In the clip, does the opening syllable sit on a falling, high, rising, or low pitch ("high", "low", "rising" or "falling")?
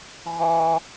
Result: high